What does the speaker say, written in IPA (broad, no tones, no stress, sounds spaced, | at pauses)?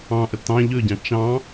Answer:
ɑ̃ ʔ ə t ɑ̃ ʎ ɵ ɟ ɑ̃ t͡ʃ ɑ̃